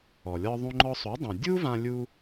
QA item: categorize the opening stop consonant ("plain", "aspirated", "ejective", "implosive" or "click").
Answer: click